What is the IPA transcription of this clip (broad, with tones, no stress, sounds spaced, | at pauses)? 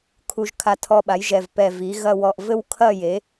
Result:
kʰ u˧ ʒ kʰ a˧ tʰ ɔ˧ ɓ a˩˥ j ʒ ɛ˧˩ v p ɛ˧˩ v i˩˥ ɣ ɐ˥˧ w ɔ˧˩ ʔ v ɘ˥˧ w kʰ ɐ˥˧ j e˩˥